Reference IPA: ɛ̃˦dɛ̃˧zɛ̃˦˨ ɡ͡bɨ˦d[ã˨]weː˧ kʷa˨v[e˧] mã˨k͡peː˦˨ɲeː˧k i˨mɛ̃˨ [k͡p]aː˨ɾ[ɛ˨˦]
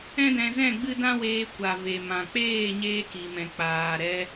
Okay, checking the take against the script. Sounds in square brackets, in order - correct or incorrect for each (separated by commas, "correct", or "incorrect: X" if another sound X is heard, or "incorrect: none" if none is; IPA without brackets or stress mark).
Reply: incorrect: ã˦, incorrect: e˨, correct, incorrect: ɛ˧